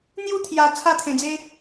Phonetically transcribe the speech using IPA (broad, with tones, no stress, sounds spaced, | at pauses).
n̪ j u˥˧ t̪ʰ j a˨˩ t͡sʰ a˥˧ t̪ʰ ẽ˨˩ d͡z e˦